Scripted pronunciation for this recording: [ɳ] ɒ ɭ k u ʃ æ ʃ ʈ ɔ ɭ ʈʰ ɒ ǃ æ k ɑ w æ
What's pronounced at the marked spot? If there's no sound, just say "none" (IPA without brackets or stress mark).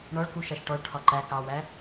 ɳ